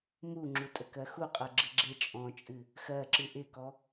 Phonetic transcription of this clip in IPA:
muŋ͡ǁu tʼəkɜxuqʼɜ ɡ͡ǁɨɡ͡ǁe t͡ʃʼɔ̃t͡ʃʼɨ | xɜǁɨ ʔɪkɔ

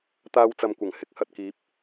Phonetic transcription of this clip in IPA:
t̪aː˧wt͡sɐ˨mkʷɐ˨˩ŋ hɪ˧k̚hɐ˨t̚kiː˨˥p̚

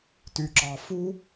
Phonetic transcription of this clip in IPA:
ty˧ǁɑ˧ fu˦

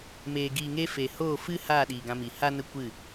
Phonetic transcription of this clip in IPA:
meː˨ɡiː˨ŋe˧ fe˨hoː˦˨fɨ˦ haː˦˨ɗiː˨ɡã˧mi˨ ha˦nə˦ kʷɨ˦˨

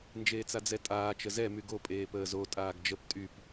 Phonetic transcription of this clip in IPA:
nd͡ʒeːt͡sad͡zɛtʼaː t͡ʃəzɛ myɡo pʼeːpəːzo tʼaːɡd͡ʒəp tʼyp

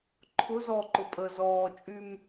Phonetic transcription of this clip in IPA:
ǃʰʊ zɔǃʊ pʼə zɔːt͡ʃʼym

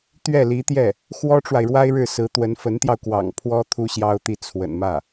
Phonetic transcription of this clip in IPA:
t̪ɥɛ˥˩li˧˥t̪jɛ˥˩ | xwɔ˥ʈ͡ʂwa˨ɪ̯ɻwa˥ɪ̯ɻɻ̩˥˩ sɹ̩˧˥ t̪wə˧˥nfə˧˥nt̪jɑ˧ʊ̯ kwɑ̰˨˩ŋ pʰwɔ˥ t̪ʰu˥ɕjɑ˥ʊ̯t̪i˥˩ t͡sʰwə̰˨˩nmä˥˩

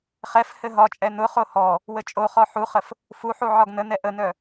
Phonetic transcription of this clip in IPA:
χɛf hɘɦɒt͡ʃʼɛ nʊχo hɔ | wət͡ʃʼoχɔ ħuχəf | fuħu ʕɒɡnənɛ ʔənœ

